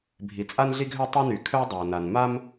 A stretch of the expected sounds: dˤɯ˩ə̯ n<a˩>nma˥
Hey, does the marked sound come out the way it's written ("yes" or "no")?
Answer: yes